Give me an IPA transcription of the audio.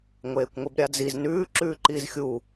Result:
ŋʷeːkʷŋʷibɾʲad͡ziz nʉː ǁʉːǃiːzxʲu

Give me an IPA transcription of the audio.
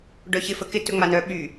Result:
ɖœçɪ fəkɪ tɵŋ͡manœ ɓy

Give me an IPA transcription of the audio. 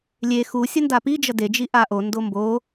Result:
lʲe xu sʲʌndapid͡ʒʌ ded͡ʒi ʔaʔondo mbo

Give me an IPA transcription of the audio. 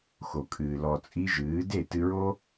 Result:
xo˨kʼɨː˨ lɔ˨t͡sʼi˧ ʒɨː˨˦ de˦˨tɨ˧ɹo˦

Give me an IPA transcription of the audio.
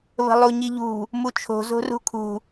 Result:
βə̤lˠuɲiʎṳ | mut͡ʃʰo̤ zo̤rṳkʰṳ

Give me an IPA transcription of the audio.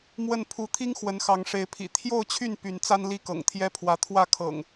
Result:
mwə˥˨n pʰu˨˦t̪ʰi˦ŋ xwə˨˦nxɑ˨˦ŋʂe˨˦ɪ̯pʰḭ˨˩ t̪ʰjo˥˨ʊ̯t͡ɕʰy˥˨n py˨˦nt͡sa˦nli˥˨ kɤ̰˨˩ŋt̪ʰjɛ˦pʰwä˨˦ t̪ʰwä˥˨kʰɤ̰˨˩ŋ

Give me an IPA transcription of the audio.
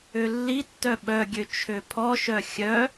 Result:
ølːitːœ ɓœɡʲø t͡ʃʰøpʰɔʃœ xʲœ

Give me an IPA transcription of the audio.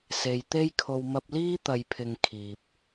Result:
se˨jt̪e˥jkʰo˧w mɐ˧p̚liː˥ t̪ɐ˨jpʰɪ˨ŋ kʰiː˨p̚

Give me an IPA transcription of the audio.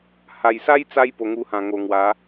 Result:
ha˨˩jsa˦jt͡sa˧j po˨˩ŋu˧hã˨˩ŋo˨˩ ŋwa˨˦

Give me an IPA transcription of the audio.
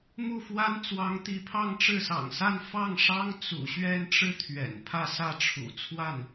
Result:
mu˥˩fwa˥n t͡swɑ˧˥ŋt̪i˧˥pʰɑ˥˧ŋ ʈ͡ʂɻ̩˥˩sɑ̰˨˩ŋsa˥˧n fɑ˥˩ŋʂɑ˥ŋ t͡sṵ˨˩ɕɥɛ˥˧nʈ͡ʂɻ̩˥˩ t̪ʰɥɛ̰˨˩npʰä˥˧ sä˥˩ʈ͡ʂʰṵ˨˩ t͡sʰwa˥˩n

